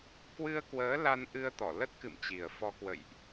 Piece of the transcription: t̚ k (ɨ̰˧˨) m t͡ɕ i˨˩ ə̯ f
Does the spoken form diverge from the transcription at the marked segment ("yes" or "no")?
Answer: no